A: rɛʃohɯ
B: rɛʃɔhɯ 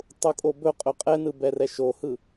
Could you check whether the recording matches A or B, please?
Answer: A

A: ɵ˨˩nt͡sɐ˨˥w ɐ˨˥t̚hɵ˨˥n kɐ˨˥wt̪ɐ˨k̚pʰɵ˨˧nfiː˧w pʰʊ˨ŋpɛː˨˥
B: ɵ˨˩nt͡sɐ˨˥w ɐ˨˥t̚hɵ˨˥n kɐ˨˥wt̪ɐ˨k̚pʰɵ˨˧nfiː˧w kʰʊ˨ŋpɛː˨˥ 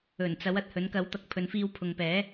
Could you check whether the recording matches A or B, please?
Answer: A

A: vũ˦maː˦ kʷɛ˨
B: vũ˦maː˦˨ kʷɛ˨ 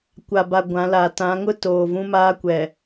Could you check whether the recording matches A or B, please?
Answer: A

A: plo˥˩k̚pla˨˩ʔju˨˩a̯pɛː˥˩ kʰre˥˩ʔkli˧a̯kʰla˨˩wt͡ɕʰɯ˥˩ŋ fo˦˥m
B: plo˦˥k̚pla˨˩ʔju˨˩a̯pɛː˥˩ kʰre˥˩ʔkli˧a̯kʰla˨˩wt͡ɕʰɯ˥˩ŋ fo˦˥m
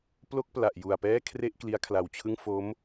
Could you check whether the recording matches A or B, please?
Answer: A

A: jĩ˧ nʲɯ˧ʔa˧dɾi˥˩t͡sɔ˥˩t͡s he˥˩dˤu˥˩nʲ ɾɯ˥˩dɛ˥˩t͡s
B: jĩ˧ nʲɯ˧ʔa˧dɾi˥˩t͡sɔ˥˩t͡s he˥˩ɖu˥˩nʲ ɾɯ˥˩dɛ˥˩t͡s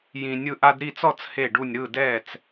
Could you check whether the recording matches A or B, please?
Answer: B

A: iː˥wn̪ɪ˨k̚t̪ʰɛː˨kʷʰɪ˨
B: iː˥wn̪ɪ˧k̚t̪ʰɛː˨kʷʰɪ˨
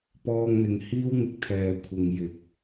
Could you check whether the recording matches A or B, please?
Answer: B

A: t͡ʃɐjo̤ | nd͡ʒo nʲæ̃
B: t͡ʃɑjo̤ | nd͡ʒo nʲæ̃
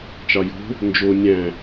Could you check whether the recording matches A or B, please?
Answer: B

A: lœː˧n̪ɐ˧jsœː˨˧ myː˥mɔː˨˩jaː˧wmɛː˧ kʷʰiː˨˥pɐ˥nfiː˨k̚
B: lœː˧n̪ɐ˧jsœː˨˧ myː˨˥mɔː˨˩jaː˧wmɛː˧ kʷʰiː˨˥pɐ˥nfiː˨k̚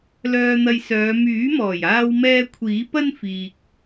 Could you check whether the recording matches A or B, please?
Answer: B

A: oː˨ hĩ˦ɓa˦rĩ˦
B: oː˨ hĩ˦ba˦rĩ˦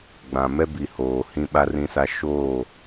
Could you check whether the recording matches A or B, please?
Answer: A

